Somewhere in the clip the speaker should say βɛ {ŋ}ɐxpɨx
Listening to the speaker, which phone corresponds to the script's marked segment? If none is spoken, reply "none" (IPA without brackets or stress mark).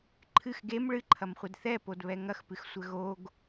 ŋ